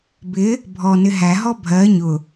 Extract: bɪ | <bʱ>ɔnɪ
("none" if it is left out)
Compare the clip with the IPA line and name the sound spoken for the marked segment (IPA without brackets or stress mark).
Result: bʱ